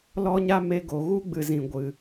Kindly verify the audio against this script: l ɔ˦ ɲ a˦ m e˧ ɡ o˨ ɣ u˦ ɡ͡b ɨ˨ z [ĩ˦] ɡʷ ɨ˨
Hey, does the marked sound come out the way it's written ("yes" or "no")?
no